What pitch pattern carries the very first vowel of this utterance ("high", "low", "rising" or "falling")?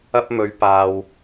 high